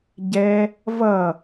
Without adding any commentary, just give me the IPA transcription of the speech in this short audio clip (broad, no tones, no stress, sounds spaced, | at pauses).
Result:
ɟ ɛ | v ʌ